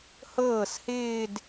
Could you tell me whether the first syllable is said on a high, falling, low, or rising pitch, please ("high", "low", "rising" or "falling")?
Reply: falling